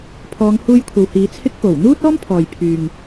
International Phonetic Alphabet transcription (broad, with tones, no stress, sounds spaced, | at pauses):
pʰ ɔː˨˧ ŋ h uː˧ j kʷʰ ɐ˨ w h iː˨˧ t͡sʰ ɪ˥ k̚ p o˨˩ w n̪ uː˥ t̚ ɔː˥ m pʰ ɔː˨ j pʰ yː˨ ŋ